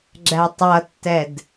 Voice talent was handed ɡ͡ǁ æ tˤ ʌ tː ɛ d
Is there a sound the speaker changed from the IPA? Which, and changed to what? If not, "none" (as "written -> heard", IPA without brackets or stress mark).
none